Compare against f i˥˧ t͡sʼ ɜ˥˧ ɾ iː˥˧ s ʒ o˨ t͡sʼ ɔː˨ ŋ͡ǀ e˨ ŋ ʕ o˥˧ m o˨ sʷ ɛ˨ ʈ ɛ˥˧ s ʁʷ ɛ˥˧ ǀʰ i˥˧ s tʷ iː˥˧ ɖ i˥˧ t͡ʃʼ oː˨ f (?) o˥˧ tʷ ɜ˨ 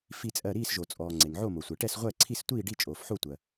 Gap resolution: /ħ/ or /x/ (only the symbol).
ħ